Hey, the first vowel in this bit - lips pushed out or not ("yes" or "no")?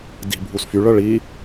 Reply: no